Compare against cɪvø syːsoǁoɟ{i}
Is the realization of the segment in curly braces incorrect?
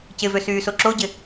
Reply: yes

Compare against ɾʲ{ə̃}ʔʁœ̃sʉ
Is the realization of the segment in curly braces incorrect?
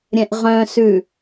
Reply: yes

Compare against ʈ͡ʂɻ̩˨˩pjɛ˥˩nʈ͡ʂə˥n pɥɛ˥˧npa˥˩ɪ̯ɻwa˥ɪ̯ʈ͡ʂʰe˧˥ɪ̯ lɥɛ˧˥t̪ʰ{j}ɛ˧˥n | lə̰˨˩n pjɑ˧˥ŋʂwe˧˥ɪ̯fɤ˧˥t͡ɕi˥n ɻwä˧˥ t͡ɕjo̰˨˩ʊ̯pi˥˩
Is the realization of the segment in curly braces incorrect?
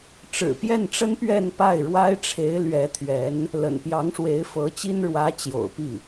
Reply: yes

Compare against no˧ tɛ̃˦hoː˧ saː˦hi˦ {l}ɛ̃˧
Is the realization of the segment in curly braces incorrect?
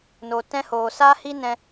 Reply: yes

